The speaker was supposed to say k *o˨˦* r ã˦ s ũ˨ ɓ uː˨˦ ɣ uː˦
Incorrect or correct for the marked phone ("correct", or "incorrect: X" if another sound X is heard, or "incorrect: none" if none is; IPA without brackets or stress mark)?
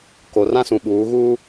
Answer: incorrect: o˨